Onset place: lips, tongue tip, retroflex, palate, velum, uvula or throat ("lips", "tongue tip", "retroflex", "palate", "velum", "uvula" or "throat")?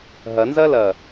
throat